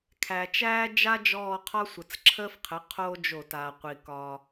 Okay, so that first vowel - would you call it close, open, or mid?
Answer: open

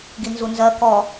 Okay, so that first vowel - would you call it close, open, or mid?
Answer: close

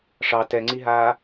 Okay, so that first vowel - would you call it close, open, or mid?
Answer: open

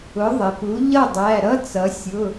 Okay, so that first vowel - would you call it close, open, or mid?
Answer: close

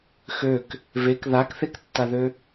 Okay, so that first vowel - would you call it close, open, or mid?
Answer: mid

